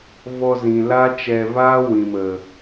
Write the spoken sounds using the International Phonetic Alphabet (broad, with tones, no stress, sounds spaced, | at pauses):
v ɔ˧ z ĩ˨ l a˦ t͡ʃ ɛ˧ v aː˦ w ĩ˨ m ə˨